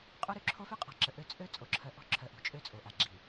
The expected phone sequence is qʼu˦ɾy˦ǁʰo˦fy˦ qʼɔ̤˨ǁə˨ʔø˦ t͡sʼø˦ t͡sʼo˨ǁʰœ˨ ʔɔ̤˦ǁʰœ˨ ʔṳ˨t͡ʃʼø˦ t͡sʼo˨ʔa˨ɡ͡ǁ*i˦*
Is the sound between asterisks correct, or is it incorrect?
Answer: incorrect